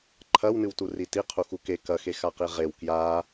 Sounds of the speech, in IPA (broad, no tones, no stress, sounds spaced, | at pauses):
ǃʰ ɐ w n ɨ w t u r i t i qʰ u x u k e k ɐ x e x a q i ʁ e w k j a